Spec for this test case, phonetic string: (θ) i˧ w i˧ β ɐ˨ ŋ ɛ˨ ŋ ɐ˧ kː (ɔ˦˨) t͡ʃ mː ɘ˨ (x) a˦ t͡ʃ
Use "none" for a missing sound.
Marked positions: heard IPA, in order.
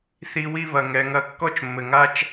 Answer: θ, ɔ˦, ŋ

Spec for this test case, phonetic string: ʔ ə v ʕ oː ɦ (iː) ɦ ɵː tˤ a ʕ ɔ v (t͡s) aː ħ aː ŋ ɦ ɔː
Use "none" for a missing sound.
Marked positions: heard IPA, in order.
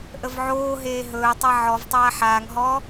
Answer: eː, tˤ

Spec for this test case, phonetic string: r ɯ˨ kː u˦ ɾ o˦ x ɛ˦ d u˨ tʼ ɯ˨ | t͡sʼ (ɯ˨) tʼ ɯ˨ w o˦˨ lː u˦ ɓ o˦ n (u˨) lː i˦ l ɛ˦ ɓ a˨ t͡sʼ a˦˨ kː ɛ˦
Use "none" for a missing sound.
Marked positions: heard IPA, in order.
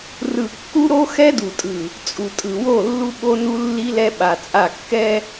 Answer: u˨, u˦

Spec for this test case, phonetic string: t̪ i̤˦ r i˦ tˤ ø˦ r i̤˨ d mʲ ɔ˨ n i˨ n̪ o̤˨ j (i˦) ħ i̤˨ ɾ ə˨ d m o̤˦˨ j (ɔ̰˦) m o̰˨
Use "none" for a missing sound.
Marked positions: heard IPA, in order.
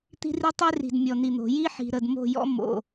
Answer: i˦, ɔ̰˦

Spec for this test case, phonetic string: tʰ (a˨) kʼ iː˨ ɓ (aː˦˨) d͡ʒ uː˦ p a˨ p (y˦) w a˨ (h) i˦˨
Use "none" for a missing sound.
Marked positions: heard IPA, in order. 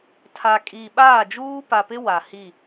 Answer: a˨, aː˦˨, ɪ˦, h

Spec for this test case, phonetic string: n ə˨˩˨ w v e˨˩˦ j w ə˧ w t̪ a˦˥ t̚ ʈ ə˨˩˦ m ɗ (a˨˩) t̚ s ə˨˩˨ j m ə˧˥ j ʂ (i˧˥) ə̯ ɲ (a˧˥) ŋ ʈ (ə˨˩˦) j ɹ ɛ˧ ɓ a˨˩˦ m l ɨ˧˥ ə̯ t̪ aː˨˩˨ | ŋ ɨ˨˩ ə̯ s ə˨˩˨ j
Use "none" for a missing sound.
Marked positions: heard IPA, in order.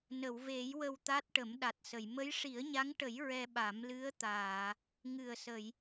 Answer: a˨˩, i˨˩˦, a˧˥, ə˨˩˦

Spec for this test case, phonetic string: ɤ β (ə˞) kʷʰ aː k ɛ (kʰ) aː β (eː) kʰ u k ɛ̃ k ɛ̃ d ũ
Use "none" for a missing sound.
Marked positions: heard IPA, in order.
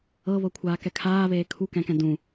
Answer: ɤ, kʰ, eː

